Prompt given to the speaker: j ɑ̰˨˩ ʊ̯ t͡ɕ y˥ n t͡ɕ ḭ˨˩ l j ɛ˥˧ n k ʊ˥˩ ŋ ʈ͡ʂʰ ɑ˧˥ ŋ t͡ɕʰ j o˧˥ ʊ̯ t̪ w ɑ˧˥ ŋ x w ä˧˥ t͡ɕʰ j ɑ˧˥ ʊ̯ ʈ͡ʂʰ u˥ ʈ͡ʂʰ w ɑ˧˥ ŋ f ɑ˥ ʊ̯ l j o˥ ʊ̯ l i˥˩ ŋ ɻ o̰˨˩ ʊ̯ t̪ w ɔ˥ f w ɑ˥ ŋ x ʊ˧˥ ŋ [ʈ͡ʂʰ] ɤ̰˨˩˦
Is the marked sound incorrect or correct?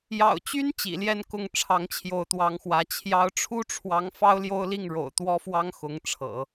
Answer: correct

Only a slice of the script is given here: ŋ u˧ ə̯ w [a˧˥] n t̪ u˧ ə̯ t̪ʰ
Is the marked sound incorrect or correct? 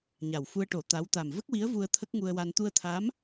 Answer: incorrect: a˧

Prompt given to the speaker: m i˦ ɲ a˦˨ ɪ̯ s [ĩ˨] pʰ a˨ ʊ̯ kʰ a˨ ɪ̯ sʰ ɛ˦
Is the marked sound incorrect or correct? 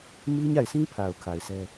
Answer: incorrect: ĩ˦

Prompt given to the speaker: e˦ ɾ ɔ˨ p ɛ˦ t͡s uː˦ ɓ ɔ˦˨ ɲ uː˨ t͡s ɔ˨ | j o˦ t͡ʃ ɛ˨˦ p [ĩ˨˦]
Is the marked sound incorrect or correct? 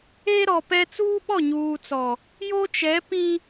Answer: incorrect: ĩ˦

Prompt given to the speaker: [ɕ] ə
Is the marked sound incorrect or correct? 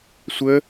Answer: incorrect: sʷ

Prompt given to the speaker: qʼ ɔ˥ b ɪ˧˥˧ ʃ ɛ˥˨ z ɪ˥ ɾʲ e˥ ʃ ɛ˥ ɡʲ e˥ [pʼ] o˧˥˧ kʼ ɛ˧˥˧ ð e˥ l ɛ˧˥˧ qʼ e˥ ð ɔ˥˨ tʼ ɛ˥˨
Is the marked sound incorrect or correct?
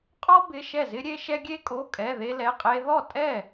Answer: incorrect: kʼ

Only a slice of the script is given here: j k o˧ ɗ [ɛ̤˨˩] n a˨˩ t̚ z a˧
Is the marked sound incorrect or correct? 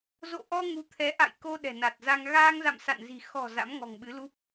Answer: correct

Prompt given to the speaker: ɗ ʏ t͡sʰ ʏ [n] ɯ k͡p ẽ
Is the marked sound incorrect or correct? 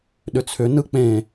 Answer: correct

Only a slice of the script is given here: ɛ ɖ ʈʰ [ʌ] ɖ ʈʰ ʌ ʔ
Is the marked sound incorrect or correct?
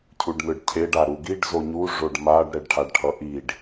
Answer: incorrect: a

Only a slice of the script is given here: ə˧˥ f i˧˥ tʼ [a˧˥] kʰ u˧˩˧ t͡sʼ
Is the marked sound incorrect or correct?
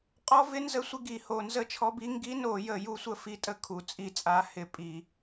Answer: incorrect: ə˧˥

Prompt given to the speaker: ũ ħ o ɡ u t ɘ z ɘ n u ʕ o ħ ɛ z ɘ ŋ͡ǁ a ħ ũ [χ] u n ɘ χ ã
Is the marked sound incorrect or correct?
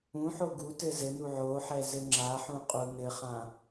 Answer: incorrect: qʼ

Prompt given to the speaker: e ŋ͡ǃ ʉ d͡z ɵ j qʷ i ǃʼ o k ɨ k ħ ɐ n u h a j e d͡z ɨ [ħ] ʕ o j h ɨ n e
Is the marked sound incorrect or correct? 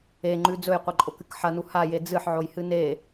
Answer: correct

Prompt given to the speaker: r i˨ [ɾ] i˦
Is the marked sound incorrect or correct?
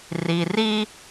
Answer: incorrect: r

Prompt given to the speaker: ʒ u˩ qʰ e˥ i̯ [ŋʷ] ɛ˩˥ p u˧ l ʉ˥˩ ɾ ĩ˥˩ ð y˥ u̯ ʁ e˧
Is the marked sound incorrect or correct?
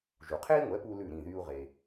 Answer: correct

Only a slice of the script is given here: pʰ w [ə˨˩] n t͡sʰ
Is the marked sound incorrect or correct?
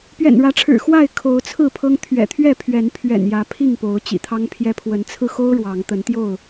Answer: incorrect: ə˨˦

